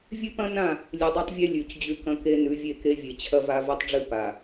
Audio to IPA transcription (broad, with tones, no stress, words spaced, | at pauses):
vʲɨ˦pɐ̃˦nã˦˨ | lʲɨ˨dˤe˦tˤvʲe˦ lʲʉ˨c d͡ʑʉ˦kɐ̃˦ke˦ nʉ˨˦vʲe˦˨ke˦vʲe˨ t͡ɕʰɐ˦va˦ vɐ˦tˤɖ͡ʐɨ˦ pa˨